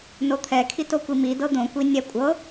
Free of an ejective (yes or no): no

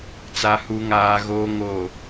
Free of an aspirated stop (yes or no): yes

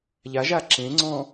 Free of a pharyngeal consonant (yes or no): yes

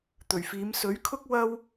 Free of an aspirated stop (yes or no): no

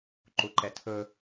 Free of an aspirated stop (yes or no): no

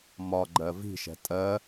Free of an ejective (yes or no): no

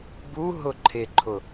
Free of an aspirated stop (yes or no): no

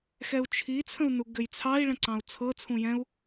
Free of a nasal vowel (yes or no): no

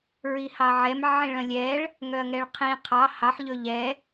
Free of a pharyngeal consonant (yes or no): no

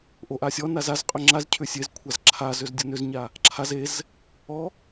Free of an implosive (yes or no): yes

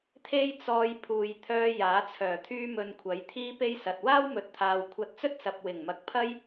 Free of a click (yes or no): yes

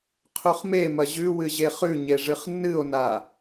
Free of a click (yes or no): yes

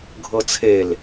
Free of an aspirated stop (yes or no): no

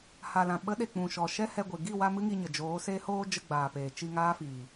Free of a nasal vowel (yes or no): no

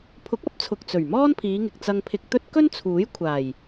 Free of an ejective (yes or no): yes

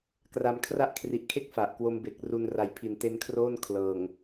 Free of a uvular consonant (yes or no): yes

